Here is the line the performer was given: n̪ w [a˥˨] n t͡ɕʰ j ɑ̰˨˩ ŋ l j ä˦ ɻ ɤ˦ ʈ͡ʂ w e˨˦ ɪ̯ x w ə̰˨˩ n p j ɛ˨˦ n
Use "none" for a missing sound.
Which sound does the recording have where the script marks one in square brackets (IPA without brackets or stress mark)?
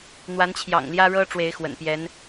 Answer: a˨˦